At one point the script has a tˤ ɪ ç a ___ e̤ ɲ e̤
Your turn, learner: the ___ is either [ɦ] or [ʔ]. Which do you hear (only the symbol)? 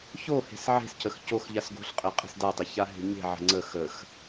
ɦ